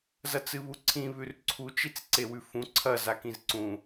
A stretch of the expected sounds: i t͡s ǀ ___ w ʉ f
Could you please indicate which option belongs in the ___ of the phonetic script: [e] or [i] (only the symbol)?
e